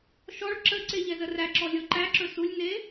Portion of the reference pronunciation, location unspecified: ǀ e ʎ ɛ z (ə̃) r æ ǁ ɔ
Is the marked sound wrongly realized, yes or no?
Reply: yes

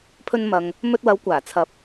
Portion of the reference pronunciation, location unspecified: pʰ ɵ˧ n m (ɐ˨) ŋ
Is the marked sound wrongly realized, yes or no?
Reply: no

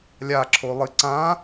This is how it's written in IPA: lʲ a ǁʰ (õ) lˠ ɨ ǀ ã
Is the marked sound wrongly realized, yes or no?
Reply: yes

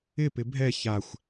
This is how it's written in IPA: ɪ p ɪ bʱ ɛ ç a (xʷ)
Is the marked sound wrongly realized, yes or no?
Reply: no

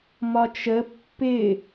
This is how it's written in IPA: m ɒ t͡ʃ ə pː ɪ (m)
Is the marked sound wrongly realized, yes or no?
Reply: yes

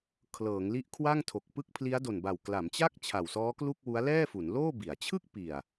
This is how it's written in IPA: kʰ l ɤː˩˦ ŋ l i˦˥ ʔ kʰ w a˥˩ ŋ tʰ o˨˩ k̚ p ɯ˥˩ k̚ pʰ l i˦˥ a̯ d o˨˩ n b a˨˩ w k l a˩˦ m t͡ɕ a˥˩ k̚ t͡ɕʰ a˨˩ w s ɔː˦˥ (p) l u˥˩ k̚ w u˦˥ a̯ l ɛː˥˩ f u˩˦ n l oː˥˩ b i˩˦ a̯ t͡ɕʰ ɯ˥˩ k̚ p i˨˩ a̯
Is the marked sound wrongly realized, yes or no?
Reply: yes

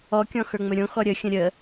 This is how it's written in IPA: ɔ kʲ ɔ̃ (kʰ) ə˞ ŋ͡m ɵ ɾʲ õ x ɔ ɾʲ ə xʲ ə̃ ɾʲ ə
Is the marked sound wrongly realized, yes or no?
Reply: yes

